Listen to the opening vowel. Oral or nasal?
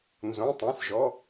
nasal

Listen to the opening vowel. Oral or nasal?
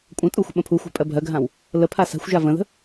nasal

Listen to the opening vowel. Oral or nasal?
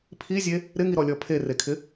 oral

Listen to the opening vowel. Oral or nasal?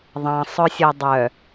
nasal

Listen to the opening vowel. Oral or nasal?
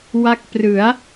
oral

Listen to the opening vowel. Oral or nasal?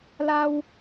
oral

